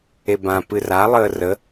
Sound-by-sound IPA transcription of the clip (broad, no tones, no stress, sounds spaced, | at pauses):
e b ã p ɨ r a lˠ əː r ə